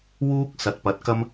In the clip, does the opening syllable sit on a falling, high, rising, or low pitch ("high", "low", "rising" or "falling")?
high